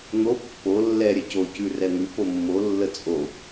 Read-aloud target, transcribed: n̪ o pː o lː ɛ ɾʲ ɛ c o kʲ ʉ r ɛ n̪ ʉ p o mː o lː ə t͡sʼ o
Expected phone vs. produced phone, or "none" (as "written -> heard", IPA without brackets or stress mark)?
kʲ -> c